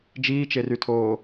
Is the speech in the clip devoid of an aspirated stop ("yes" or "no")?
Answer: no